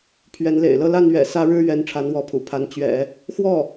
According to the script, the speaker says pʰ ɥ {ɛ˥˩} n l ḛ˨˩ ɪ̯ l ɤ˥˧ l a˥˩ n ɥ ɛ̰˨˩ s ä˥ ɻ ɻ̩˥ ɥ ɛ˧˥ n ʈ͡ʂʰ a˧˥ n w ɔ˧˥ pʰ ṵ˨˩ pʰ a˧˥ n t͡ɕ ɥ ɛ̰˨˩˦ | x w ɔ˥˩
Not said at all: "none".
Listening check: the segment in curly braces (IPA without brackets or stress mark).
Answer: ɛ˧˥